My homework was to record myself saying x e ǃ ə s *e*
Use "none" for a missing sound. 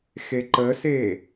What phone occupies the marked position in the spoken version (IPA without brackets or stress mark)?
e